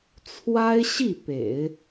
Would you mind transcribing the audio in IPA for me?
t͡sʰ w a˥ ɪ̯ ɕ i˥˩ p ḛ˨˩˦ ɪ̯

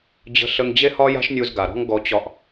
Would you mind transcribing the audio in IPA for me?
d͡ʑ ə̤˧ ɬ ə˧ ŋ d͡ʑ e˦ h ɒ˦ j a̤˦ ʃ nʲ u˧ z ɡ a˨ ɾ ɔ̤˦ ŋ ɡ ɔ˧ t͡ɕ ɒ˧ ʔ

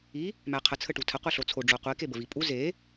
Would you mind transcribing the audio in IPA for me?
i | m æ qʰ ə t͡sʰ ə ʈ u tʰ ə qʷ i ɬ o t͡sʰ o ɖ͡ʐ o qʷ i k e b ə v i pʼ u z e

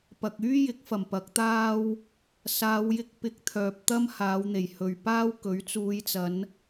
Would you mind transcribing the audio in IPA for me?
p ɐ˧ k̚ yː˥ j ɪ˨˥ k̚ f ɐ˨˩ m p ɐ˨˥ k̚ t̪ aː˥ w | s aː˨˧ w j ɪ˧ k̚ p ɪ˧ k̚ t̪ʰ œː˨ p̚ t̪ ɐ˥ m h aː˨˧ w n̪ e˨˩ j h ɵ˨˩ ɥ p aː˥ w k ɵ˨˥ ɥ t͡s uː˨˧ j t͡s ɐ˨˧ n

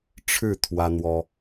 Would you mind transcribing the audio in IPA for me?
ʈ͡ʂʰ ɻ̩˥˩ t̪ʰ w ä˥ n̪ w ɔ˥

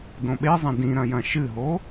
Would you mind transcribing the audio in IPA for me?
d õ ɓ e zˤ ɐ̃ d ĩ ɾ ɐ̃ j ɐ̃ ʃ ɨ ɦ o

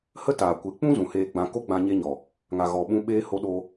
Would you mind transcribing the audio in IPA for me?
h ə˦ t aː˨ kʷ e˨˦ k͡p ũ˦ z ũ˨ h eː˧ ɡ͡b ã˧ k o˦ ɡ͡b ã˧ ɲ e˧ ɲ ɔ˨ | ŋ a˨ ɣ ɔ˨ ɓ ũ˧ ɓ eː˧ h o˧ ɗ o˧

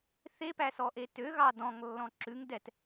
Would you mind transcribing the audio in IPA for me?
θ e p æ s ɔ ʔ e t ø ɣ ɑ d ɔ̃ ŋ lː ɔ̃ ǁ ʉ ŋ d ɛ t

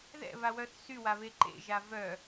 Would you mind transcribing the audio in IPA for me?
ð ɛ̰ β a w œ θ s y w a β e ǃ ḛ ʒ a v œ

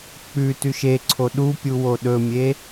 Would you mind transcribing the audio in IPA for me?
k͡p ʉ t ʉ ʃ e ǀʰ o ɗ u pʲ u w o ɗ ɵ mʲ e

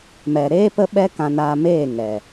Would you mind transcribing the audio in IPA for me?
m ɛ˨ ɾ eː˦ p ə˦ ɓ ɛ˦ k ã˧ n aː˧ m eː˦˨ ŋ ɛ˨

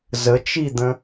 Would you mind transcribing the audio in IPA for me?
z ə t͡ʃ i d̪ ə̃

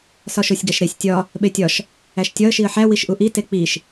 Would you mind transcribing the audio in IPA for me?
s ɒ ʃ o sʲ ɡ æ ʃ ɾ e sʲ tʲ ɒ | ɓ e tʲ ɒ ʃ | æ ʃ tʲ ɒ ə̯ ʃ i ə̯ ħ æ w i ʃ ʔ u ʔ i t e k͡p i ʃ

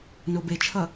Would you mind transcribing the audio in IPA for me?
n o b e t͡ʃʰ ʌ

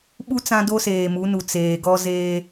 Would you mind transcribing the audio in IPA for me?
ɓ u˦ t͡s ã˦ d o˦ s eː˨ m u˨˦ n u˨ t͡s eː˨ ɡ ɔ˦ z eː˦

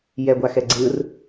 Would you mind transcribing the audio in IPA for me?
j ɛ ɡʷ a x ɛ ɡ͡ǀ ɯ r

